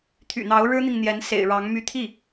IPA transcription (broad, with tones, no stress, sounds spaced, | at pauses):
t̪ʰ y̰˨˩ n̪ ɑ˧˥ ʊ̯ ɻ ɻ̩˥ n̪ i˨ ŋ n̪ j ɛ˧˥ n s ḛ˨˩ ɪ̯ ɻ ɑ˧˥ ŋ m y˧˥ t̪ʰ i˥˩